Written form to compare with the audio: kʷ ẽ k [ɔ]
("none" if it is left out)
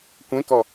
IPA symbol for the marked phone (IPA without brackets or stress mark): ɔ